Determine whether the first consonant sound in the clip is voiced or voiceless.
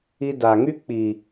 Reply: voiced